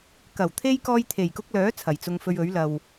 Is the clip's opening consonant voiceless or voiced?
voiceless